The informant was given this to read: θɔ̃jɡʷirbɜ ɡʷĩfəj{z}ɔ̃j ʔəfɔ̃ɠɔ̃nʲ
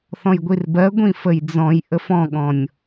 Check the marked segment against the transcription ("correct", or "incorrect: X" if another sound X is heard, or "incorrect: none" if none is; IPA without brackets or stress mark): incorrect: d͡z